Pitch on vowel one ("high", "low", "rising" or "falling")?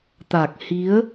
low